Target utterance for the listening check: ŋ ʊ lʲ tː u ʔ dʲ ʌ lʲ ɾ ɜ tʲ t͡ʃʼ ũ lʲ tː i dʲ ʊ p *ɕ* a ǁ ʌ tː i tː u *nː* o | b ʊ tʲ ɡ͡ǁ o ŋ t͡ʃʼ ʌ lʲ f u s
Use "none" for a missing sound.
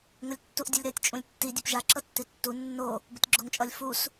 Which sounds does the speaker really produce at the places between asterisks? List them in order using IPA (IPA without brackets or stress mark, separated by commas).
ʒ, nː